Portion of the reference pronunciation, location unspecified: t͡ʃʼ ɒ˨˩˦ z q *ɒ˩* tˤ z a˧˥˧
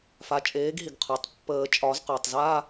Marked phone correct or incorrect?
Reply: correct